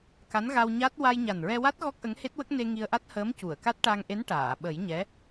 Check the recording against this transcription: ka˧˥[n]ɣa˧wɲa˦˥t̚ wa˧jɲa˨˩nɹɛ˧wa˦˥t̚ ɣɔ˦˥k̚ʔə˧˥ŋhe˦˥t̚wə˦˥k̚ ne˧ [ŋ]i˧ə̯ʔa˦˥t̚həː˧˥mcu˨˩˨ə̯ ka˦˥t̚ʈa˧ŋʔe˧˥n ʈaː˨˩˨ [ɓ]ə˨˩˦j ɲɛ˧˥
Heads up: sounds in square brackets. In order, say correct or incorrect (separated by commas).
correct, correct, correct